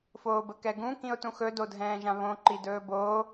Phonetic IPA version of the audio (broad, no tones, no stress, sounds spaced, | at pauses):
f oː b ə k ɛ ɡ ũ k ĩ ʊ̯ t ũ x ɵ d o dʱ ɛ̃ː ʒ ã β õ ǃ i d ɵː b oː